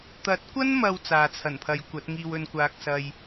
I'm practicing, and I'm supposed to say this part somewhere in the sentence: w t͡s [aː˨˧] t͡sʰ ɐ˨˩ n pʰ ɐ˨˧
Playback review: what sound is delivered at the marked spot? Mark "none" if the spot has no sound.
aː˨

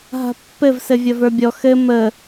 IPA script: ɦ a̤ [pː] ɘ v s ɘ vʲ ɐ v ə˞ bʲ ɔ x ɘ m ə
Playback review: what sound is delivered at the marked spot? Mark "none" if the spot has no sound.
pː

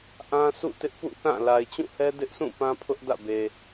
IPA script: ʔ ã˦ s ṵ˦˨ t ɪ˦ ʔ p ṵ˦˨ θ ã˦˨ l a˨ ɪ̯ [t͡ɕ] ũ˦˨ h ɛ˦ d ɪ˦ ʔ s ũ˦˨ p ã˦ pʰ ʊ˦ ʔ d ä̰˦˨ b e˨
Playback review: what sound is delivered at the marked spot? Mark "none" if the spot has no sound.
t͡ɕ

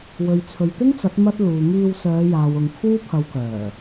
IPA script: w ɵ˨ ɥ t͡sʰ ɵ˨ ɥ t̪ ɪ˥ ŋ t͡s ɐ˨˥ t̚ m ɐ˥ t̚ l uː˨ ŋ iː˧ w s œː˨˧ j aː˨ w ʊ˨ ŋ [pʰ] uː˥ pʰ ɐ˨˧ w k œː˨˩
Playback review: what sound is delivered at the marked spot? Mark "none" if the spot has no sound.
kʰ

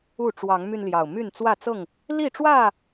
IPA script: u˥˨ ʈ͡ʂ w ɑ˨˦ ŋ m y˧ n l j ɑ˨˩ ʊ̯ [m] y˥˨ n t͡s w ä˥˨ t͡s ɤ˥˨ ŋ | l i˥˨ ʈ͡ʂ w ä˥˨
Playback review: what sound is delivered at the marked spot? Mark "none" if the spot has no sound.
m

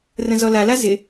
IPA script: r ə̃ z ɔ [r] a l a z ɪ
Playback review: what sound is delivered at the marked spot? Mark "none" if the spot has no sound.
l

